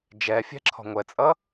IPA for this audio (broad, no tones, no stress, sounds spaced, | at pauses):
d͡ʒ ɛ fʲ ɛ̤ ǁʰ ɔ̤ ŋʷ ɛ t͡sʼ ʌ